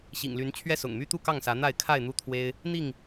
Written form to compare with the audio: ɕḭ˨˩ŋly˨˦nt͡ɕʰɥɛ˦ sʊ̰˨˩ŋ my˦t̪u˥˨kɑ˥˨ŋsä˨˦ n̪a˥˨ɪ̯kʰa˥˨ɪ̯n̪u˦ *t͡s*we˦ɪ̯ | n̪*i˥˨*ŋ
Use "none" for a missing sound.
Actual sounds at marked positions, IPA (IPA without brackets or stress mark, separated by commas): t̪ʰ, i˥˨